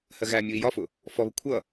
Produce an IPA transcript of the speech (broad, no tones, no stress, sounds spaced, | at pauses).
h ɜ ɣ æ mʲ u i̯ j ɒ f ʊ | f ɔ β ə kʷʰ ʌ